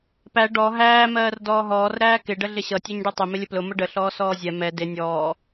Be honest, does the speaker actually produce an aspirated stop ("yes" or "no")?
no